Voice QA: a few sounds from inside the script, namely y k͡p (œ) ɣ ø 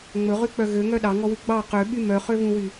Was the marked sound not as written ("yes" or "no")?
no